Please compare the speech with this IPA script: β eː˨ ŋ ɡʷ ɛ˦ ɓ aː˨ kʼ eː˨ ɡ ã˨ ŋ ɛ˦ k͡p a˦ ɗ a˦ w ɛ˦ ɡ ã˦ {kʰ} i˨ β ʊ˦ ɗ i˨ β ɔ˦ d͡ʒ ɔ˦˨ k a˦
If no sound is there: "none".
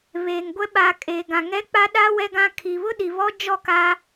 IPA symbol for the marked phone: kʰ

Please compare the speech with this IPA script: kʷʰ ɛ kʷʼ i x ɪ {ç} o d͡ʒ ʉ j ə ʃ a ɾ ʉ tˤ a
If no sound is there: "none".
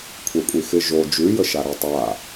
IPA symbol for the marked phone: ʒ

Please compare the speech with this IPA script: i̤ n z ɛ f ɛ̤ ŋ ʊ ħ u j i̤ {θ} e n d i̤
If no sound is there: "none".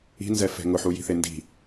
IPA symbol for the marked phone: θ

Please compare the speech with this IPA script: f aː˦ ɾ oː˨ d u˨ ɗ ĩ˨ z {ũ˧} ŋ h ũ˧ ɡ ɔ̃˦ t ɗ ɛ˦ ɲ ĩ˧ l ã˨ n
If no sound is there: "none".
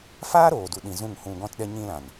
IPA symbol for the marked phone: ũ˦˨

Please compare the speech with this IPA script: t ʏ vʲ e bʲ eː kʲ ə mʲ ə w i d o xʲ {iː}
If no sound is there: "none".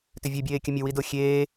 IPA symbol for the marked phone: eː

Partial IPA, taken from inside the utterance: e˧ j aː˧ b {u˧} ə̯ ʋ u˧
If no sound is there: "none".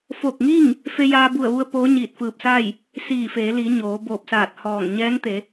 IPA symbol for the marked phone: u˧˩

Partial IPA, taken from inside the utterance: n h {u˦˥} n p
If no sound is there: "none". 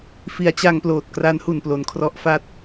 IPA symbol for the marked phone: u˨˩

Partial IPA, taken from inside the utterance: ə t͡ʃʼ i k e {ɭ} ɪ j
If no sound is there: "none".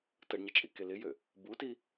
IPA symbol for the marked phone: l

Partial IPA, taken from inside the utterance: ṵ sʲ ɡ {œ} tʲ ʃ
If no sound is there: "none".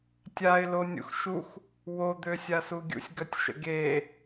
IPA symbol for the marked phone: œ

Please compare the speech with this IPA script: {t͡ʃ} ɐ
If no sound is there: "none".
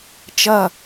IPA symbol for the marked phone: t͡ʃ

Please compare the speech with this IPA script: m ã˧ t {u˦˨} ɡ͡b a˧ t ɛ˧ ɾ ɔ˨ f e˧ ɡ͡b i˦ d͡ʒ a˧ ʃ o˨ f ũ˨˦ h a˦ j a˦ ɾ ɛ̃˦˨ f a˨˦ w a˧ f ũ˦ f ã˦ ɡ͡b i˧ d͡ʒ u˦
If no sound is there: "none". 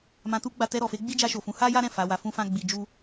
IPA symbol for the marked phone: u˦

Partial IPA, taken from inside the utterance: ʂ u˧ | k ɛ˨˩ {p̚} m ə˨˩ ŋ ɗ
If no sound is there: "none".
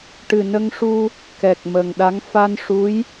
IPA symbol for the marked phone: k̚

